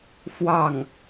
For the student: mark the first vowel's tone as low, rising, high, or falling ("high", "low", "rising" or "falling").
falling